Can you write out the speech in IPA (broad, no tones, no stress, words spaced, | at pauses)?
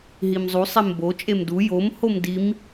ɦimzˤu sˤembo t͡ʃʼemdu jom homdim